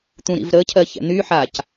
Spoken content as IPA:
t̪ ũ ɾ ḭ v ɾ ə cʰ ɜ ç ɛ̰ n̪ y ħ a c

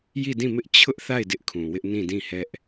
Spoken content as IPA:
j i˦˨ d ĩ˦˨ m ɪ˦ ʔ t͡ɕʰ ʊ˦ ʔ θ a˦˨ ɪ̯ d ɪ˦ ʔ kʰ ũ˨ w ɪ˦ ʔ n ĩ˦˨ d ĩ˦˨ h ɛ˦ ʔ

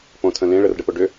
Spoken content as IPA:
p õ tʰ ə̃ l ẽ ɭ ə r ɖ ə p o ɖ ʏ

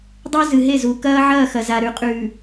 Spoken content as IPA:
dˤ o˦ z ɨ˨ ɦ e˦˨ z u˨ k ɐː˦ ʕ ɐː˦˨ x ɐ˨ z a˨ ɾ ʉ˨ qʼ ʉ˨

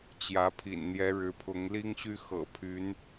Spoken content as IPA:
t͡ɕ j ä˧˥ pʰ ḭ˨˩ n n̪ j ɛ˧˥ ɻ ɻ̩˧˥ pʰ ʊ˧˥ ŋ l i˥ ŋ ɕ y˥ x ɤ̰˨˩ pʰ y˧˥ n

